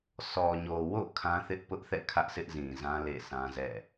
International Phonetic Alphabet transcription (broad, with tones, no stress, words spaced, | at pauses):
sɔ˨ɲo˨wo̰˦˨ kʰã˦ θɪ˦ʔpʊ˦ʔθɛ̰˦˨ kʰä˦ʔsɪ˦ʔzĩ˨zã˦ lḛ˦˨sã˦zɛ̰˦˨